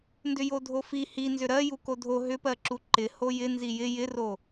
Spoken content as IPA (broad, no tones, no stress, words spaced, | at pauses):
ndʏjodʱofi hinzʏ ɾɜ jukodʱo ɦʏpɜǁu ǃɪ hojɪ nzijɪ jɪro